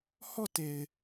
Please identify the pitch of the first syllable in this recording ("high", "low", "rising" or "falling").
falling